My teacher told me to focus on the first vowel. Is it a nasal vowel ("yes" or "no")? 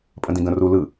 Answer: yes